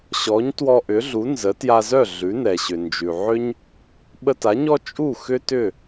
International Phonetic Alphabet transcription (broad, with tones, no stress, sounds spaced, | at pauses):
ɕ ɔ˩˥ ɲ t w ɔ˧ ʔ ʏ˩˥ ɮ u˩˥ n z ə˩˥ t j a˧ z œ˥˩ ɮ ʉ˩˥ n ɛ˩ ɕ ʏ˩ n d͡ʒ ʉ˩ ʕ ʏ˥ ɲ | ɓ ə˧ t a˩˥ ɲ ɔ˥ t͡ʃʼ u˥˩ x ʏ˥ t ʏ˥˩